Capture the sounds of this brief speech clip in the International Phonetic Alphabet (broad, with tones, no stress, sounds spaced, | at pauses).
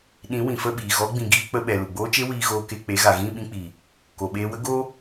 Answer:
ɗ ĩ˨˦ w ĩ˨ f ə˦˨ ɓ iː˨ ɣ ɔ˨˦ ɡ͡b ĩ˨ ɡ iː˧ k͡p ə˧ ɓ ɛ˨ l u˨ ɡ͡b oː˦ t͡ʃ e˦ w iː˨ ɣ oː˨ k e˨ k͡p e˨˦ ɣ a˨ ɣ ĩ˦˨ ɓ ĩ˧ k͡p i˨ | k o˨ ɓ eː˧ w ə˦ ɡ o˦